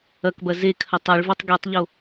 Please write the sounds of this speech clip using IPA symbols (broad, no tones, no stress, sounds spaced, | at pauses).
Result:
ɐ k b ɐ z e kʰ ɐ tˤ ɜ ɭ v e tˤ ɡ i tˤ ʎ o